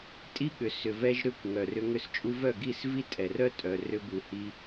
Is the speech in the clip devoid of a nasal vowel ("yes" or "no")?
yes